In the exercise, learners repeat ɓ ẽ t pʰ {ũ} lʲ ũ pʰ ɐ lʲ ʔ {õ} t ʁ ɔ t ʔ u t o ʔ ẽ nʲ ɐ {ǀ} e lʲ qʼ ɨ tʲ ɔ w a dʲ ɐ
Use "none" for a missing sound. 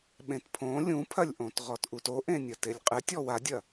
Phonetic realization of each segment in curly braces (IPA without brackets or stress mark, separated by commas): õ, õ, t